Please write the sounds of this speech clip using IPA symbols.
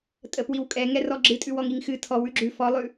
tʼəpwiwkʼɛ ŋɛrɔɡ͡ǁɨtʼʉw ɔŋiŋxɨ tʰɔw ʉɡ͡ǁʉ fɔlˠʉ

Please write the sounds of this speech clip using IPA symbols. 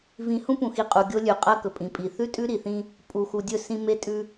vĩ˨hũ˦pũ˨xi˨ qʼu˨ɡʲo˦lʲʉ˨ qʼɐ˦kɵ˨pʼĩ˨pʼi˨ θʉ˦tʼʉ˦ɾi˨θĩ˦ | pʼu˨xu˨dʲɵ˦˨sĩ˦ me˦tʼʉ˦

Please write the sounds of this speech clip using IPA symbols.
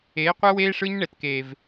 eː˨˦qʷɛ˦weː˦ ʂɯ˦ɲ ɳɛ˨tkeː˨v

